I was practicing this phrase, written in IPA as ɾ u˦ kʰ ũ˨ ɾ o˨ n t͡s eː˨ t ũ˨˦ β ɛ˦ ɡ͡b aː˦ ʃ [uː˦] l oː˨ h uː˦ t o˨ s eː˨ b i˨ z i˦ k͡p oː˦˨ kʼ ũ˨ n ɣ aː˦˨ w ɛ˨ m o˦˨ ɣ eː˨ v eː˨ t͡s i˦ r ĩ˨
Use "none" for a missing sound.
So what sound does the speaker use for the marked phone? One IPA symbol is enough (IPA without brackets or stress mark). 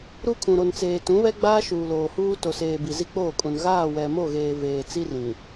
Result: uː˨